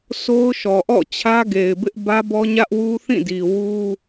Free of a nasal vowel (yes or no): no